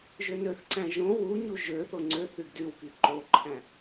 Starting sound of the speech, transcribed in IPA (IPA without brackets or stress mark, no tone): ʒ